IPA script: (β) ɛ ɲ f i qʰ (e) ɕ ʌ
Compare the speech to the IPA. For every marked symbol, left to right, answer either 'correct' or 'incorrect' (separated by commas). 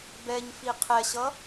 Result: incorrect, incorrect